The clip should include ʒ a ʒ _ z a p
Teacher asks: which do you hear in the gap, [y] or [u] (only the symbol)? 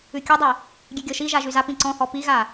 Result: y